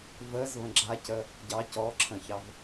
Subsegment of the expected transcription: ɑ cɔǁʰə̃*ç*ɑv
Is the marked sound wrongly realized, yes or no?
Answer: no